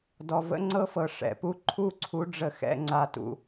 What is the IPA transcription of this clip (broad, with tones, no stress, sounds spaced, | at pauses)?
d ɔ˨ v ə̰˦ ŋ͡ǀ ɤ˦ f ɤ˨ ʂ ɛ̰˨ p u˦ ǃʰ u˦ ǀʰ u˨˦ ɖ͡ʐ ə˨ x ɛ̰˨ ŋ͡ǀ a˨ t ṵ˨